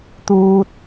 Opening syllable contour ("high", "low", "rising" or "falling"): low